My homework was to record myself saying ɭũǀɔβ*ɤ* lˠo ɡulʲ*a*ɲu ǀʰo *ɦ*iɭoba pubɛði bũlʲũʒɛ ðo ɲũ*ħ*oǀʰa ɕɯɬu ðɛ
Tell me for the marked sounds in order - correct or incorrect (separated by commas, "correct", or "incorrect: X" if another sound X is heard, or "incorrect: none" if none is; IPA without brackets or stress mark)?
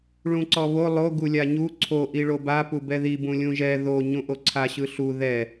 incorrect: o, correct, incorrect: ʔ, incorrect: ʔ